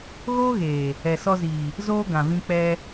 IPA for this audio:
ɣ oː˦ ɣ eː˨ | ɛ˨ s ɔ˧ z iː˨ | z oː˦ ɡ ã˨ v ĩ˧ k͡p ɛ˧

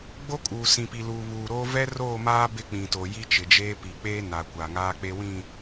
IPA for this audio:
ɡ͡b o˦ kʼ uː˨ s ĩ˨ p i˨ l uː˨ β uː˨ ɾ oː˦ v ɛ˦ r oː˦˨ m aː˦ b ɪ˦˨ k͡p ĩ˨ t o˨ j i˦ t͡ʃ ɪ˨ d͡ʒ eː˦ p i˨ k͡p eː˦ n a˨ kʷ a˨ ŋ aː˦ k͡p e˦ w ĩ˦˨

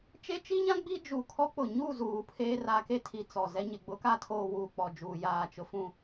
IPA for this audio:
t͡ʃ e˦ t͡ʃ i˦ ɲ ã˦ ɡ͡b i˦ d͡ʒ u˨ kʰ ɔ˦ k͡p ʊ˨ ɲ u˦˨ z uː˨ pʰ eː˦ r a˨ k e˦ tʰ i˨ t͡s ɔ˨ z ɛ˦ ɲ ɪ˨ ɡ͡b ʊ˦ k a˦ tʰ oː˨ w uː˨ k͡p ɔ˨ d͡ʒ uː˨ j aː˨ t͡ʃ ʊ˨ f ũ˦˨

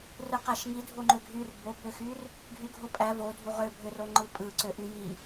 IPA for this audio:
r ɯ q æ ʃ ŋ i dʱ o ŋ͡ǃ ø ɡʱ y r b o b ø x y r | ɡʱ y ɡʱ o pʼ æ v o dʱ u ʁ ø bʱ ø r o ŋ͡ǃ ɯ pʼ ɯ ǀ ø ʔ y j i

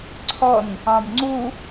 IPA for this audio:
ǀʰ ɔ n | ɑ̃ b ŋ͡ǀ u

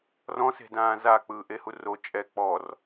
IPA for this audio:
r ɔ̃ s e̤ d ãː z a k͡p ɯː ʔ e h u r o t͡ʃʼ ɛ k͡p ɔ r

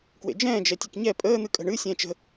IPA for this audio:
k w ḛ d͡ʒ ɛ̃ː d͡ʒ ɛ tʲ ɘ k ɲ ɛ pʼ əː n̪ ɨ kʼ ə̤ ɳ ɨ sʲ ɛ̃ː t͡ʃ ə̤

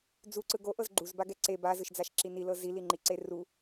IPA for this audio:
d͡z u ǀ ɯ ɡ o ʔ ɤ z ɡ͡ǃ u z b a ɡ ɛ ǀ e b a z ɯ ʃ d͡z a ʃ ǁ i n i l ɤ z i l i ŋ͡ǃ i ǀ e r u

